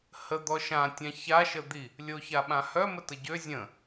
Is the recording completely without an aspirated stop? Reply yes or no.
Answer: yes